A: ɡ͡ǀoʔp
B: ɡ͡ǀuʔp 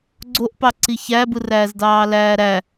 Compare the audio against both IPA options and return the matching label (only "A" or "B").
A